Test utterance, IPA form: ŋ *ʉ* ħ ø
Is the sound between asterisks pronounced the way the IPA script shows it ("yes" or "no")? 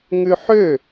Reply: yes